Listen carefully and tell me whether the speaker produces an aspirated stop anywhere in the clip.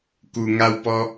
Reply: no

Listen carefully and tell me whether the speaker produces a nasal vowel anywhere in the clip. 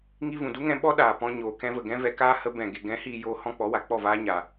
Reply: yes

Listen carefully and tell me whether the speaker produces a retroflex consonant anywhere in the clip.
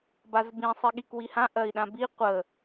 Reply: no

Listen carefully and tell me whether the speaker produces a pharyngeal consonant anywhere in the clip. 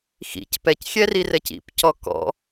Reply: no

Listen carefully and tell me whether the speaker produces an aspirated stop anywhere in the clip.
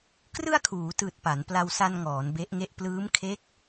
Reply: yes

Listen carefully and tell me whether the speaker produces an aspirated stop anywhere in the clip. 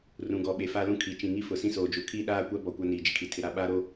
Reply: yes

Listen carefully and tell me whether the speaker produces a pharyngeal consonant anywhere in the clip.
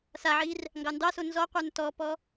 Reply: yes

